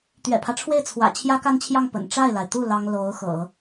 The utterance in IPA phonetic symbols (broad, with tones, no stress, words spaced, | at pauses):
t̪ɥɛ̰˨˩pʰä˦ʈ͡ʂʰwe˥˩ɪ̯ t͡sʰwä̰˨˩ t͡ɕʰjä˥ka˥nt͡ɕʰjɑ˥˩ŋ pə̰˨˩n ʈ͡ʂa˥˩ɪ̯la˩ɪ̯t̪u˥˩ lɑ˥ŋ lo˧˥ʊ̯ xɤ̰˨˩˦